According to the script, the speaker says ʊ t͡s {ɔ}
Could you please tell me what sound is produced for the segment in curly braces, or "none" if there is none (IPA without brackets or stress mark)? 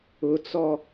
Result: ɔ